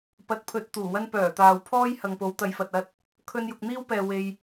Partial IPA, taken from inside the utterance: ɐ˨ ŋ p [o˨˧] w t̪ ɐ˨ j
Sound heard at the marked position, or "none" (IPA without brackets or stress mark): o˨˧